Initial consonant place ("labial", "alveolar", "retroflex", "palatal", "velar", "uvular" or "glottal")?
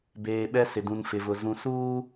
labial